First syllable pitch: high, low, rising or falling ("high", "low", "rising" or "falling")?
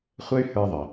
high